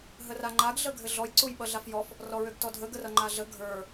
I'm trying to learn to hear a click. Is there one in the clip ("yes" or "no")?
yes